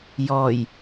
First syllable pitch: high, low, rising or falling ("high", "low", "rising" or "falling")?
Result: low